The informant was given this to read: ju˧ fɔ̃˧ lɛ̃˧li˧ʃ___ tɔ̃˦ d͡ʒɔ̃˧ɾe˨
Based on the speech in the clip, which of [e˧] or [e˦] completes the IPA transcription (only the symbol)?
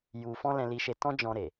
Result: e˧